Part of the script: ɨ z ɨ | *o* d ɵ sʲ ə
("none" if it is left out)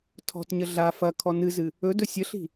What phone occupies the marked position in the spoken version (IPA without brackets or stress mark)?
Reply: ɵ